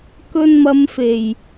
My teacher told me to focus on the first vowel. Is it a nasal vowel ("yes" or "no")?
no